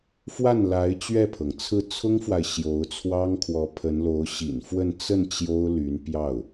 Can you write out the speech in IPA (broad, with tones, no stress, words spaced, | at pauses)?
fwa˥˩nla˧˥ɪ̯ t͡ɕɥɛ˥˩pʰɤ˩ŋt͡sʰɹ̩˥˩ t͡sʰʊ˥ŋfwa˨ɪ̯ ɕjo˧˥ʊ̯t͡sʰwɑ˥ŋkʰwɔ˧˥ pʰə˧˥nlo˧˥ʊ̯ ɕḭ˨˩nfwə˥˧n t͡sə˥˩n t͡ɕjo˥ʊ̯ly˧˥n pjɑ˥˩ʊ̯